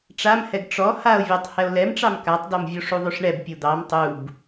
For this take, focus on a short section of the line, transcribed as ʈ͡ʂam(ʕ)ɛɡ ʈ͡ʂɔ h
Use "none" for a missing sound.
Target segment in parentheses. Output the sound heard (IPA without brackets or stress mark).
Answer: h